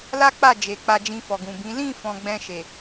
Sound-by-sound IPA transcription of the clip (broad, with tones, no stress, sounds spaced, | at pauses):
l a˦ k͡p a˦˨ d͡ʒ e˨ k͡p a˧ d͡ʒ ĩ˧ f ɔ˨ ɡ ũ˨ b ĩ˨˦ l ĩ˦˨ f ɔ̃˨ ɡ͡b ɛ̃˧ ʃ e˨